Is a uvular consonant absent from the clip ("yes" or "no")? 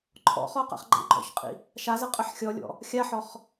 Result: no